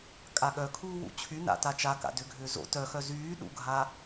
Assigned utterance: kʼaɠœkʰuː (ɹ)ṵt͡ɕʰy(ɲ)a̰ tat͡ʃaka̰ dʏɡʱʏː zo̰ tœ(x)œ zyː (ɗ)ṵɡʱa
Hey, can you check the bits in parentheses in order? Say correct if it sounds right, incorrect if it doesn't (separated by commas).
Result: incorrect, incorrect, correct, correct